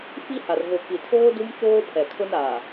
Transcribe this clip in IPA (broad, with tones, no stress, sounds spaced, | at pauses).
f i˦ h a˨ r ɣ o˨ k i˨ tʰ oː˦ d u˦ m t͡ʃ oː˦ pʰ ɛ˨ kʰ ʊ˦ n a˨